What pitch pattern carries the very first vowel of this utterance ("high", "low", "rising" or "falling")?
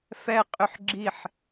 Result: falling